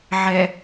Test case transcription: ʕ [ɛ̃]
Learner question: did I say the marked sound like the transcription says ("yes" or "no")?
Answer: no